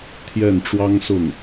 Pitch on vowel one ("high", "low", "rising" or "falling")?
falling